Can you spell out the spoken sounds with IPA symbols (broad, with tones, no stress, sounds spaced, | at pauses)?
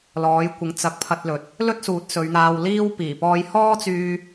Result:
l ɔː˨˥ j kʷ ɪ˨˥ ŋ t͡s ɐ˨˥ k̚ pʰ ɐ˧ t̚ l ɵ˨ t̚ | l ɵ˥ t̚ s uː˨˥ t̚ s ɵ˨˧ ɥ n̪ aː˧ w l iː˥ w p iː˨˩ p ɔː˧ j h ɔː˥ t͡s yː˧